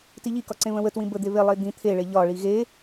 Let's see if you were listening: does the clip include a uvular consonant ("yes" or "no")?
no